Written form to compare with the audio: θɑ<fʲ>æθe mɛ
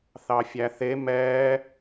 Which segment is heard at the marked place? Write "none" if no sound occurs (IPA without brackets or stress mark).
fʲ